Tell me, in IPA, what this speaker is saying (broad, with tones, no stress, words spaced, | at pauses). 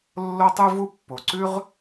lːo˦tˤʉ˦vu˦ pːo˨ǀʉ˦ʁ